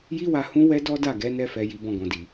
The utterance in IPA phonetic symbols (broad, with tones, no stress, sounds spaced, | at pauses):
j i˦ w a˧ h ũ˦ w ɛ˦ d ɔ˦ d a˦˨ ɡ ɛ˨˦ n ɛ˧ f ɛ˨ j i˨˦ b ɔ̃˧ ɡ ɔ̃˨ d i˨